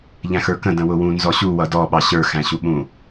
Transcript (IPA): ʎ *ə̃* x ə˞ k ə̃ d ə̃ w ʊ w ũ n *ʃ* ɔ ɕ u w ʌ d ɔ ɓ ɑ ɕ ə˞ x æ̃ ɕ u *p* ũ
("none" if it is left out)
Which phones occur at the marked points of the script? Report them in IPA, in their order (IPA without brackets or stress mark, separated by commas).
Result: æ̃, z, ɓ